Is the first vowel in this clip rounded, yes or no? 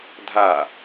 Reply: no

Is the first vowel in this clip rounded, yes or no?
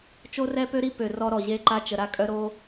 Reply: yes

